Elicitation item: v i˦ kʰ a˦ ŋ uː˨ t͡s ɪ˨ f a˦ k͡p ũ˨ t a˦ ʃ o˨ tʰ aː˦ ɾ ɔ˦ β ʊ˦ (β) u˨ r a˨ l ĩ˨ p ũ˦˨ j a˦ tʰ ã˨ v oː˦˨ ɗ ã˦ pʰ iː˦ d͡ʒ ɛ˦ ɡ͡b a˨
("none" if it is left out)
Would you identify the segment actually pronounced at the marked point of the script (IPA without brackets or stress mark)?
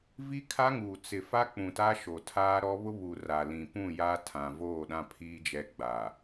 β